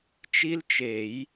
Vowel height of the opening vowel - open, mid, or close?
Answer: close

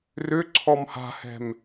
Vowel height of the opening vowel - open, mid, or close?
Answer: close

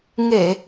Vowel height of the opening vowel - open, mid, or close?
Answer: mid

